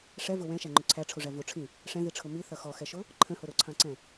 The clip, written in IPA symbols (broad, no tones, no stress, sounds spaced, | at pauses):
ʂ ɛ v ʊ w ɛ̃ ʃ æ ŋ͡ǃ ʊ ǀʰ æ ʈ͡ʂʰ u ʐ æ v u ʈ͡ʂʰ ĩ | ʂ ɛ̃ ð i ʈ͡ʂʰ ʊ m i θ ʌ x ɔ x ɛ ʃ ʊ | ǃʰ ə̃ h ʊ ɾ ʊ ǀʰ ɑ̃ ǀ ɛ̃